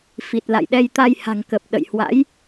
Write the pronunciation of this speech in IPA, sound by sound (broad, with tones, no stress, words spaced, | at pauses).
fi˨˩t̚la̰˧˨jɗɛ˧j t̪a˧jha̤˨˩ŋkə˨˩p̚ ɗə̰˧˨j hwa̰˧˥j